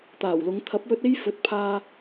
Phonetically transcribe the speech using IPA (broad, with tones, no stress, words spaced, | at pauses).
t̪aː˨˩wlʊ˨˧ŋ t̪ʰɐ˨˥p̚wɵ˧t̚ e˥jfɵ˨˥t̚ pʰaː˧